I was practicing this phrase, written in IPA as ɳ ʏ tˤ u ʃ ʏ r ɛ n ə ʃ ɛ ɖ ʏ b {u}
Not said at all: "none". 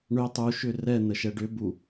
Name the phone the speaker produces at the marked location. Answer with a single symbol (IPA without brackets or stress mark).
u